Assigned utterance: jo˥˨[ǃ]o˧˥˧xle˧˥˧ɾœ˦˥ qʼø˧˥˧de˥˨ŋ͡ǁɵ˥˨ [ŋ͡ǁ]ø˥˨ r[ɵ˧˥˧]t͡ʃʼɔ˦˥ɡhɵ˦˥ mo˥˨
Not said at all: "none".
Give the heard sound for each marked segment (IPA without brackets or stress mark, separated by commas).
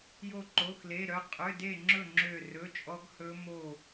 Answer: ǃ, ŋ͡ǁ, ɵ˧˥˧